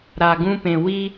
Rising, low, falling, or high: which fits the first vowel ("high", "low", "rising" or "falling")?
low